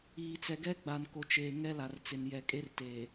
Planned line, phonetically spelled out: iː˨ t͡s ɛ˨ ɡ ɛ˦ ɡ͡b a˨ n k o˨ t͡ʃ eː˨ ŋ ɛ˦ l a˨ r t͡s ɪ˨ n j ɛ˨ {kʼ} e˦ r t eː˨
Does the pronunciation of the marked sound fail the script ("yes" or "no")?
no